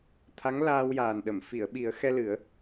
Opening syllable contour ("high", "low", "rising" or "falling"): rising